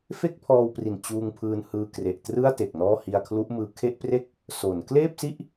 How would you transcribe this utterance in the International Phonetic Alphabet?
fe˥˩k̚pʰɔː˧wpri˨˩n t͡ɕuː˧ŋpʰɯː˧nhɯː˧ kre˨˩ʔtrɯ˥˩a̯te˨˩k̚ nɔː˥˩ hi˧a̯kʰlu˦˥ʔmɯː˧ kʰe˥˩ʔpre˥˩k̚ | so˩˦n kleː˥˩p̚si˥˩ʔ

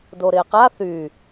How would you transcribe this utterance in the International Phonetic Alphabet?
doɾɪːqa θy

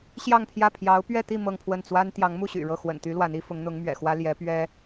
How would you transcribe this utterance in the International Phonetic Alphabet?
ɕjɑ˥˧ŋpʰjä˥˩ pʰjɑ˧˥ʊ̯ pɥɛ˥˧t̪i˥˧ mɤ˥˧ŋpʰwə˥˩n t͡swa˥n t̪jɑ˧˥ŋmu˥˩ ɕy̰˨˩ɻɤ˥˩ xwə̰˨˩nt̪y˧˥ lwa˧˥ni˥ fʊ˧˥ŋn̪ʊ˧˥ŋmɥɛ̰˨˩xwä˥ ljɛ˧˥pɥɛ˥

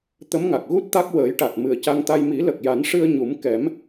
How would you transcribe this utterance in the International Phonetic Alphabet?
t̪ə˧˥mŋa˨˩k̚ ɣu˦˥t̚t̪a˦˥k̚ wəː˨˩˦jʈa˨˩t̚ mɨ˨˩ə̯ca˧ŋt̪a˧j mi˨˩˦lə˨˩k̚ja˨˩˦n ʂɨ˧ə̯ɲu˨˩˦m kɛ˨˩˦m

